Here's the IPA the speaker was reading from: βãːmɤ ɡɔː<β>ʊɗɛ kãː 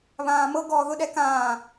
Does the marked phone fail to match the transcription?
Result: yes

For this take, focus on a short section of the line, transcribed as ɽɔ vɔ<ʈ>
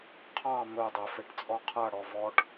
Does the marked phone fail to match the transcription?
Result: no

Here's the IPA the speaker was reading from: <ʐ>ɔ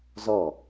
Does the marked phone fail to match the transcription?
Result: yes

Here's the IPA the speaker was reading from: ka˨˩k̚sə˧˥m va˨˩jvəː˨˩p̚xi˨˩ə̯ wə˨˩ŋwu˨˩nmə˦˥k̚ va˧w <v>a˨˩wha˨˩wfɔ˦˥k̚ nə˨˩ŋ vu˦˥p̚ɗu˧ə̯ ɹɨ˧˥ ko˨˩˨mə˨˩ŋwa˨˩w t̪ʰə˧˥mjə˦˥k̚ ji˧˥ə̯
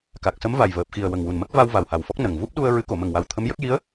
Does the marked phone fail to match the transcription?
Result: no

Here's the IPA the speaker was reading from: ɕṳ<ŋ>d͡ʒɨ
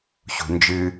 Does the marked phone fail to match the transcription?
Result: yes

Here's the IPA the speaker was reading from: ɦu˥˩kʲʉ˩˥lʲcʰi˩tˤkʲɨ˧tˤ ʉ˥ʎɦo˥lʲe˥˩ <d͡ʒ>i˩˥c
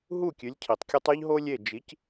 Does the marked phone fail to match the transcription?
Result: no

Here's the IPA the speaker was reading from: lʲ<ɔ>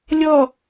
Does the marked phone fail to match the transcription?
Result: no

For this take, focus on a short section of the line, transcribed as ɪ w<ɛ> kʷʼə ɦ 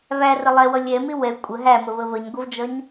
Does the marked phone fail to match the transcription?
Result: no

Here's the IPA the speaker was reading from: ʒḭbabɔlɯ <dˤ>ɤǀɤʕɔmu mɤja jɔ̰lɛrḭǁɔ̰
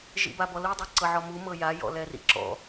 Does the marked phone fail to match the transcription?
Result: no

